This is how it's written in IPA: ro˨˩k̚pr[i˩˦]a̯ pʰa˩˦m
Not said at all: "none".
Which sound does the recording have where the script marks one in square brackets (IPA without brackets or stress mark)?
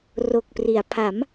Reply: i˩˦